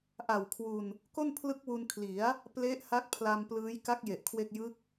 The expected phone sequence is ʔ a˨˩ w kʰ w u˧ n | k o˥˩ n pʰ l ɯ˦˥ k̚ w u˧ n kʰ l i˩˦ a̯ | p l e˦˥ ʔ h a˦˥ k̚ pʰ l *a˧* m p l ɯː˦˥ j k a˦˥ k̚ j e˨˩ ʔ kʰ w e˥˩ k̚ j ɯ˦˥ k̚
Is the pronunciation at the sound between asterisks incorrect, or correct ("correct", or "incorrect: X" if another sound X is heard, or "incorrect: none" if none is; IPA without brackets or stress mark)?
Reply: correct